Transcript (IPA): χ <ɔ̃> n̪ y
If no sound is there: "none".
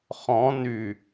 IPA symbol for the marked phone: ɔ̃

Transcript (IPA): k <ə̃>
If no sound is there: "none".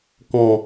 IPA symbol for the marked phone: ɔ̃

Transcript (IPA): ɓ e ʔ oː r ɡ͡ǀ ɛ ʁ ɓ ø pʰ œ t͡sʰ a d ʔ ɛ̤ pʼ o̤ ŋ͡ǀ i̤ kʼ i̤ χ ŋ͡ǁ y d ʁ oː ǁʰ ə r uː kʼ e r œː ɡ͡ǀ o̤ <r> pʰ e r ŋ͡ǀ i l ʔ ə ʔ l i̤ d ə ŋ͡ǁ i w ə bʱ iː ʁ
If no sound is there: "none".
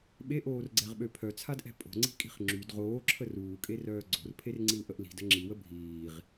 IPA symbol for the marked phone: r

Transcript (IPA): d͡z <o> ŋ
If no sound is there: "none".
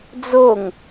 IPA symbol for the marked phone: o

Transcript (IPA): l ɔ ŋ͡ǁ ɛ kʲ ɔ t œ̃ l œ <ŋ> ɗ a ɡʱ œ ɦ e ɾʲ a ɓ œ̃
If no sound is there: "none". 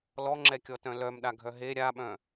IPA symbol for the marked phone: m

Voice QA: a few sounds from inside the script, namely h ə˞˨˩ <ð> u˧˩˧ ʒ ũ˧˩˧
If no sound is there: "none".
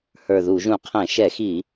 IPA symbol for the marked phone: ð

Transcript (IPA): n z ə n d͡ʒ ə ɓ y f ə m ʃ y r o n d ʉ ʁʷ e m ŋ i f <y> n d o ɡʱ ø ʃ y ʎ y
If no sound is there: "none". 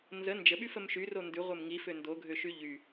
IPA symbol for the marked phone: ø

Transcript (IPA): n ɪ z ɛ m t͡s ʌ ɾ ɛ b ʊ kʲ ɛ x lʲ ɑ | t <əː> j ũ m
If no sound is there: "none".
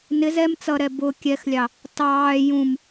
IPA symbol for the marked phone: ɑː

